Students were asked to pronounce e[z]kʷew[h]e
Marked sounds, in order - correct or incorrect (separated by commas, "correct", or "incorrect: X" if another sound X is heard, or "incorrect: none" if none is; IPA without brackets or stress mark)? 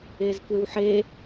correct, incorrect: ħ